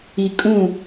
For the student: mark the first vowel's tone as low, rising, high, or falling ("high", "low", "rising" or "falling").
low